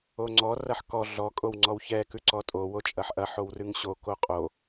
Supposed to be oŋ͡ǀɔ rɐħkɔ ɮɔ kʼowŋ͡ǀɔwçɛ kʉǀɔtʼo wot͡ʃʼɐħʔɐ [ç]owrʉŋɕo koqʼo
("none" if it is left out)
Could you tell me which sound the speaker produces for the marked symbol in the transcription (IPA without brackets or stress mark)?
ħ